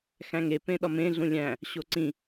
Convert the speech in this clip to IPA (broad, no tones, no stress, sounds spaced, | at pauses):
x æ̃ ŋ e p ẽ ɗ ɒ m ẽ ɮ ũ lʲ æ̃ | ɕ o ǀ ĩ